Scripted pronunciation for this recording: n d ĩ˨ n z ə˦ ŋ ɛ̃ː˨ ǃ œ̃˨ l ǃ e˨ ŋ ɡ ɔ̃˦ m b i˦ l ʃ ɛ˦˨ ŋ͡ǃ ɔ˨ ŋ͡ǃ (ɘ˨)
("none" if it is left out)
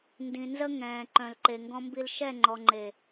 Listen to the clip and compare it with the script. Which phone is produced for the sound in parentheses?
e˨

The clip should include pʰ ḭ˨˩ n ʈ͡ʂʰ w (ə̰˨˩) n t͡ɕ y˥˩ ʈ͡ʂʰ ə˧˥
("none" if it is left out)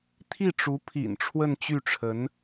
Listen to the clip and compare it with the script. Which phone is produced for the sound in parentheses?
ə˥˧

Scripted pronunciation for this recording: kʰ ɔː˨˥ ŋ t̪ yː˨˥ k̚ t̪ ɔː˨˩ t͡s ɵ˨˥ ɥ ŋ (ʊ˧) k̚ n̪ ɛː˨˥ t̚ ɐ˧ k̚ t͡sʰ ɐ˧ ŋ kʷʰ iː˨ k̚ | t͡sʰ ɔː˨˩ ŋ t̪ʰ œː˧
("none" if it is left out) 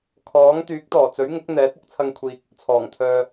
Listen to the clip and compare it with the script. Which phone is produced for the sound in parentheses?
ʊ˨˥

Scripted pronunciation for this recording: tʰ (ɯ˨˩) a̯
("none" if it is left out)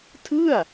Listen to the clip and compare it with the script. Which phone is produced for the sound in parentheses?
ɯ˥˩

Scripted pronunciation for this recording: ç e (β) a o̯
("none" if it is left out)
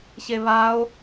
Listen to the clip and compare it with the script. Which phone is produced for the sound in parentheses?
β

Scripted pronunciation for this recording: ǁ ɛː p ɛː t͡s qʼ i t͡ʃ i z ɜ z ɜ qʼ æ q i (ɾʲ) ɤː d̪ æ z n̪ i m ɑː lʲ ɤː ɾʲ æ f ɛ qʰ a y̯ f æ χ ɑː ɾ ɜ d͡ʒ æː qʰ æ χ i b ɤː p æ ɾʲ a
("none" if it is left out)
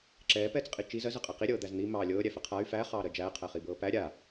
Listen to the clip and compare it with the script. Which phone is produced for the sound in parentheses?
ɾʲ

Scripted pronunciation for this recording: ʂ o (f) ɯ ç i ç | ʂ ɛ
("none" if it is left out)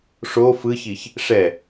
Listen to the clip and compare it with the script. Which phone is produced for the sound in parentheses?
f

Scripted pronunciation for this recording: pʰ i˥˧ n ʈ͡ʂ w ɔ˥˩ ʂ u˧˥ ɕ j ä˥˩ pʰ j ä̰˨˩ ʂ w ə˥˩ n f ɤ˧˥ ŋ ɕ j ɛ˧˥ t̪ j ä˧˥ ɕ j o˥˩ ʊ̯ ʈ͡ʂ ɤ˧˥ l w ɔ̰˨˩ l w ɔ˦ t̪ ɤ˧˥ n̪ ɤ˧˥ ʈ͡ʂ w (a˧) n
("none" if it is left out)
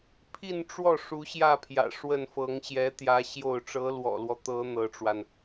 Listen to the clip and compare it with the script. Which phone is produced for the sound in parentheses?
a˧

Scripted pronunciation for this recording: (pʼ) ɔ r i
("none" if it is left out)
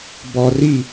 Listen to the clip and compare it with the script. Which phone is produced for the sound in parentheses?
b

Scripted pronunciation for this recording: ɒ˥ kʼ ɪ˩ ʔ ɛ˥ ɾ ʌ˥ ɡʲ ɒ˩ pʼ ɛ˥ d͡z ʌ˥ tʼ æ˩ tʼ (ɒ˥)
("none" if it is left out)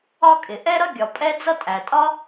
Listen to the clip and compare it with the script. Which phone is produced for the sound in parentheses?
ɒ˥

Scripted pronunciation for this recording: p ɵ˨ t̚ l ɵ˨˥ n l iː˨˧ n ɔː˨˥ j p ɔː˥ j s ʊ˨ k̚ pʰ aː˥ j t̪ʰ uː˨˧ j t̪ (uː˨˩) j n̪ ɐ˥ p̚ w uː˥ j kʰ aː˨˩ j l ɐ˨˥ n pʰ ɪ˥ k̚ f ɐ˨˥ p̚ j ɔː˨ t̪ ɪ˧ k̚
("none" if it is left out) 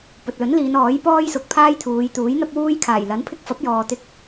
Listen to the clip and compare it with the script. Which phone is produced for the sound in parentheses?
uː˨˥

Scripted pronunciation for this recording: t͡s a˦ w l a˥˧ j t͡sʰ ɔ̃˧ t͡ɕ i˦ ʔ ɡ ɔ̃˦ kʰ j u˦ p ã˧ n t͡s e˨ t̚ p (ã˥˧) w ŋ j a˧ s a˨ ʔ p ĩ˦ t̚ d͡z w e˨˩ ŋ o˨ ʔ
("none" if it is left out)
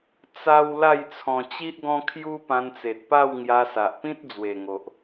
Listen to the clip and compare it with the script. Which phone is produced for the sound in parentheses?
a˥˧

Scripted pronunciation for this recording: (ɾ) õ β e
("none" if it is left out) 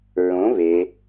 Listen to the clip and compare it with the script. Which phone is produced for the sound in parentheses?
ɹ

